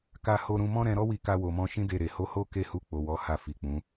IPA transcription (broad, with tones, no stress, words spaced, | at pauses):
ka˧ho˧ɾũ˧ mɔ̃˦ɾɛ̃˧ɾɔ˦wi˧ ka˧wo˨mɔ̃˧ ʃĩ˦ de˦˨ɾe˨ ho˧ho˦ ke˦˨ hu˧k͡po˨ wɔ˨˦ ha˧fi˨k͡pũ˨˦